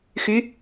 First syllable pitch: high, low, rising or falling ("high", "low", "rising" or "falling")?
rising